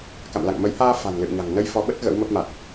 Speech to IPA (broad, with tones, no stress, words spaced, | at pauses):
ka̰˧˨mla̰˧˨ŋmə˨˦j haː˧ fa̤˨˩nlɨ̰˧˨wɲa̤˨˩ŋnə˧j fɔ˨˦ɓə˦˥t̚ ɣə̰˧˥wmə˦˥p̚ma˨˩t̚